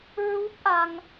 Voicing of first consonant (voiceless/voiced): voiced